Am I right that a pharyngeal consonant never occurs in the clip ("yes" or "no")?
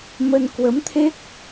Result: yes